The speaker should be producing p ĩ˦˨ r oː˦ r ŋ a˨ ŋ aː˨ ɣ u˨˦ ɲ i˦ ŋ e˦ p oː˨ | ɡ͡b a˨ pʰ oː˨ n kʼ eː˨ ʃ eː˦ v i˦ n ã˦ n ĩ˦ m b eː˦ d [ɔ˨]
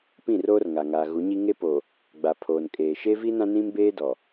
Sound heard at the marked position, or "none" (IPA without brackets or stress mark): ɔ˨